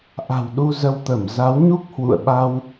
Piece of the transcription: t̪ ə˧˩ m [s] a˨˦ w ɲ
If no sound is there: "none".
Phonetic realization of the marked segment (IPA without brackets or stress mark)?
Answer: z